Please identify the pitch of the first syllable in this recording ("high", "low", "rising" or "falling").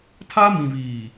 high